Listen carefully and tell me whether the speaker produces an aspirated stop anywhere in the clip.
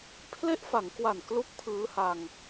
yes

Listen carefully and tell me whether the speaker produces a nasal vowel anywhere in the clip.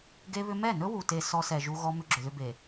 no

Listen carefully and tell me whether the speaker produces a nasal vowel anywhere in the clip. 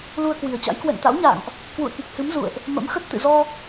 no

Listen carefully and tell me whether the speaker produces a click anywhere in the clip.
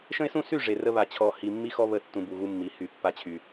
no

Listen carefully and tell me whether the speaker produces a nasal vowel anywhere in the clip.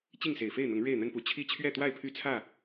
no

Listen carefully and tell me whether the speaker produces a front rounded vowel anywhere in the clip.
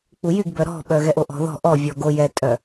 yes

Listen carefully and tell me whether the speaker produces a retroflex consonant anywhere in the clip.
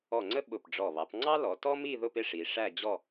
yes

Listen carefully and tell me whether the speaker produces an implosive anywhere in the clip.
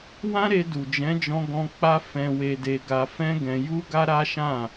no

